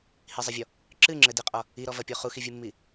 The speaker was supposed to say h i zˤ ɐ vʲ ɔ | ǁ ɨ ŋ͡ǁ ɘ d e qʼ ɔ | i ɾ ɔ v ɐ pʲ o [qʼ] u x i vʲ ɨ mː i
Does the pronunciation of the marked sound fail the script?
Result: yes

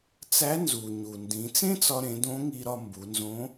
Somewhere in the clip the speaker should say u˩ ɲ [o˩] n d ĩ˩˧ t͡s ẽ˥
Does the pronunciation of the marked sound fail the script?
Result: yes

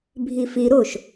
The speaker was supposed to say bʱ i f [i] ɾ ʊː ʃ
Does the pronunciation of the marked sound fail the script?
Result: no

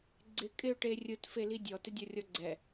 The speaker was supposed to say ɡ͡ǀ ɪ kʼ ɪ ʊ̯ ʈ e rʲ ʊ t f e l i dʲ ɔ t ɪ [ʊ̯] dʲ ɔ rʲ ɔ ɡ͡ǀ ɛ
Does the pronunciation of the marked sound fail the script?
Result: yes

